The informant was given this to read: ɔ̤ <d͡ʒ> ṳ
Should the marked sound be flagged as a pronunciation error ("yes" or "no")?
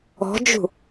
no